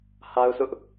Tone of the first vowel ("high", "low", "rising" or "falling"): high